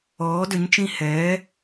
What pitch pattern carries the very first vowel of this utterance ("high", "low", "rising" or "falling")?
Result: rising